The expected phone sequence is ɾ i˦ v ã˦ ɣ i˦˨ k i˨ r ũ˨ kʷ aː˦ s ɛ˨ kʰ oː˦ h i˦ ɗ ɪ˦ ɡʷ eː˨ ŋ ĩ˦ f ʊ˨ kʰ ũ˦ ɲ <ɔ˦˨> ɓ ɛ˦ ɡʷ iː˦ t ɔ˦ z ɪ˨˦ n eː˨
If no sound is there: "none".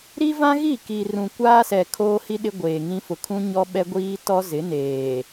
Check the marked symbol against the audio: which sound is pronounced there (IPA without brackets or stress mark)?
ɔ˦